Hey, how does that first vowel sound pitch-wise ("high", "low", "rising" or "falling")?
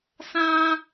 high